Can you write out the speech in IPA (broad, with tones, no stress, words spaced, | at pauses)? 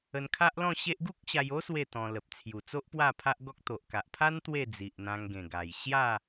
ə˧nkʰa˦ʔlɔ̃˥˧ɕe˦ʔ ɡu˦k̚ɕa˧jo˦ swe˥˧t̪ɔ̃˧ lə˨p̚ t͡sʰju˨˩t͡so˦ʔ pwa˥˧pʰa˦ʔɡɔ˦k̚ t̪o˨ʔka˨ʔpʰa˦n t̪we˥˧ d͡zi˨ʔn̪ã˧ŋɡẽ˨˩ɡa˨˩j ɕja˥˧